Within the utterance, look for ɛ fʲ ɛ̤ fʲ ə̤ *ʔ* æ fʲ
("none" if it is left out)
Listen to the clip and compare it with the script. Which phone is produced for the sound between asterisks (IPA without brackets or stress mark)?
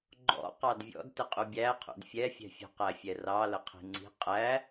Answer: q